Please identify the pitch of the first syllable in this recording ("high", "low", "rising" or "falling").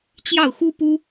falling